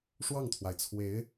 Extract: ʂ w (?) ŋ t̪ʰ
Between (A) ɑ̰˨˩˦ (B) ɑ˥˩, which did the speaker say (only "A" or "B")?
B